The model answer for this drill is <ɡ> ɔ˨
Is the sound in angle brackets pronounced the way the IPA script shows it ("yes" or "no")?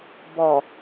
no